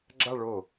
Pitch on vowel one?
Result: falling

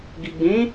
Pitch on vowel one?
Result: low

